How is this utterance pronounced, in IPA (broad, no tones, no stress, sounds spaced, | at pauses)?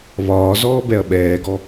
β ɒː z ɔː b ɛ ɐ̯ ɓ ɛː ɡ ɔ